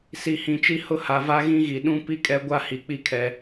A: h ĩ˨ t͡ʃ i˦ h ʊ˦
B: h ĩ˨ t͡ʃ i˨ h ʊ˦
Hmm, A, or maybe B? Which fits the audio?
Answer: A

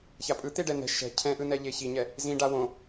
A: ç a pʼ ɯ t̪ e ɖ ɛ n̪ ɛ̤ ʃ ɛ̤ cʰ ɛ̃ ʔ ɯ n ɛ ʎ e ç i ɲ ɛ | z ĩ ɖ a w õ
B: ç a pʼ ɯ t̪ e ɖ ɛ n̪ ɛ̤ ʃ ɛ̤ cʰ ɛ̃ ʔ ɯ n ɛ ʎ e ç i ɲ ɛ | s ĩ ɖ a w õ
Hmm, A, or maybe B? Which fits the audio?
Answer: A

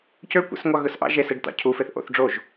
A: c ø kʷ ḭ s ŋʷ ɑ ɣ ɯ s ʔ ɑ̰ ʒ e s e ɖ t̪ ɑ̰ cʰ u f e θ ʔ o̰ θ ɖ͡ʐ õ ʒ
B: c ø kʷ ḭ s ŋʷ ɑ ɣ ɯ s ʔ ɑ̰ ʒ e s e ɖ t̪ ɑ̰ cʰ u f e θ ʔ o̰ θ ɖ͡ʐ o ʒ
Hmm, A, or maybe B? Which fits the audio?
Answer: B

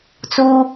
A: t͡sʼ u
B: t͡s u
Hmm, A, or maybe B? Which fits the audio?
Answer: B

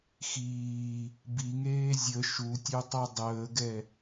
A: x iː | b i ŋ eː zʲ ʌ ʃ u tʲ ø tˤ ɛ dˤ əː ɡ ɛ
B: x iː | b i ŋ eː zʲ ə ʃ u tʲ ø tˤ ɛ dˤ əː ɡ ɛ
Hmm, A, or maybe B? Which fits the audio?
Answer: B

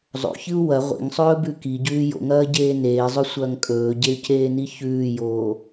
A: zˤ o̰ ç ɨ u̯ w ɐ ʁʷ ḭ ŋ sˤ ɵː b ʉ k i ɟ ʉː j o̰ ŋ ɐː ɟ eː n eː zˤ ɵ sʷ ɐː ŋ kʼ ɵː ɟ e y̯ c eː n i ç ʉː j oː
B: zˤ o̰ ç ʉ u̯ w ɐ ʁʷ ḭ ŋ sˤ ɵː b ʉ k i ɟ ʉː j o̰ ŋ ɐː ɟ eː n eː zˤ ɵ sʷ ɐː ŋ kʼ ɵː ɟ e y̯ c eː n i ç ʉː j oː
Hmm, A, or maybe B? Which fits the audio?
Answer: A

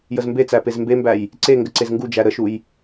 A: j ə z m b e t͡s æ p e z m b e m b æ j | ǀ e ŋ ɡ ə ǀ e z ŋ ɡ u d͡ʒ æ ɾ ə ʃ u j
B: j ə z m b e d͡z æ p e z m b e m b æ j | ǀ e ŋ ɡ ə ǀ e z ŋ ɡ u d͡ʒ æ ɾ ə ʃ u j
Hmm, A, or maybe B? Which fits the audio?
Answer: A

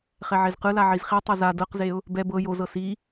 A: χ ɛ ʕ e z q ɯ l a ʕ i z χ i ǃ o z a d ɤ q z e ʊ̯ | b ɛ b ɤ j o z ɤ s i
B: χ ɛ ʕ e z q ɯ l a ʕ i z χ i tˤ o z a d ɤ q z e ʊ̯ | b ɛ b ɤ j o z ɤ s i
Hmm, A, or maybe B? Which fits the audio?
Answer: B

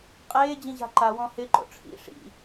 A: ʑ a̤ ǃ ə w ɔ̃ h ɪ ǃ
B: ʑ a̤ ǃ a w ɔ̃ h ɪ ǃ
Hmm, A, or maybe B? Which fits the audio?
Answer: B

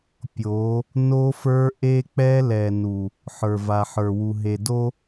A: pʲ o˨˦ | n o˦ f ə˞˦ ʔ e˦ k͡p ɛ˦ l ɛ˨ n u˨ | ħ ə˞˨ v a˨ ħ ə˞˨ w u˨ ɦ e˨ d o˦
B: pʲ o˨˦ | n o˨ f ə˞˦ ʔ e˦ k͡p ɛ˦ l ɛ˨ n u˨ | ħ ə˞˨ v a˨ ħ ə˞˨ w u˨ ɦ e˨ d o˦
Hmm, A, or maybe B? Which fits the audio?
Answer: A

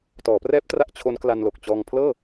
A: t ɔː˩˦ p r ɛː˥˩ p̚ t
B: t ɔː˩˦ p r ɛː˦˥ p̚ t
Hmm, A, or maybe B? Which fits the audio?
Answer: B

